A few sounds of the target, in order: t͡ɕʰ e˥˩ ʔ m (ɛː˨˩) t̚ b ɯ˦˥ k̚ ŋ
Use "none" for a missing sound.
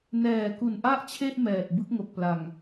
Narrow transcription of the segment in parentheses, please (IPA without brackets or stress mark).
ɛː˨˩